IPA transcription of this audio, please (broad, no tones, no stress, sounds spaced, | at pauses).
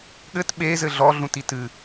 ɠ ɘ t ɓ e z ɘ ɮ ɔ ɮ ũ t i t ɨ